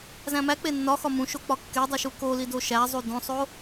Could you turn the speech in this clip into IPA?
z æ̃ m æ k͡p e nː ɒ x ɒ m ũ ʃ o k͡p ɒ kː e dˤ u ʃ u k o l i d o ʃ æ zˤ u d õ sˤ o

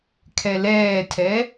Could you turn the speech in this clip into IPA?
kʰ ɛ l ɛː tʰ ɛ

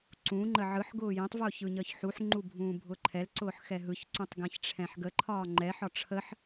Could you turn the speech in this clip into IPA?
ǀ ũ ŋ͡ǃ ə ʕ ɯ ħ ɡ ʊː j ɛ̃ tˤ v ʊː ç ɯ ɲ əː ç ħ u ħ ŋ͡ǃ u bʱ ũː bʱ ʊ ǃʰ ɛ l ǀ ʊː ħ x ɛ ɦ ɯ ç ǀ ũ tˤ ɡ ɛ̃ ç ʈ͡ʂʰ ɛ̃ ħ ɡ ə ǃʰ ɒː ŋ͡ǃ ɛ ħ ɒ ʈ͡ʂʰ ə ħ

